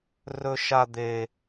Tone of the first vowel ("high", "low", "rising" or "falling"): high